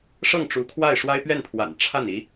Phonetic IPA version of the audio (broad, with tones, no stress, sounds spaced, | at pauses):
ʂ ɤ˥˩ ŋ ʈ͡ʂ u˧˥ kʰ w a˥˩ ɪ̯ ʂ w a˥ ɪ̯ p ɥ ɛ˥˩ n pʰ w a̰˨˩ n ʈ͡ʂʰ a˥˩ n i˧˥